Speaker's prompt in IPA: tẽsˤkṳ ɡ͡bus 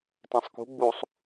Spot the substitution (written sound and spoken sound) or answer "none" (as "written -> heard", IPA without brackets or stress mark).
s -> sˤ